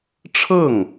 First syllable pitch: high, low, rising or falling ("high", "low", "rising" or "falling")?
falling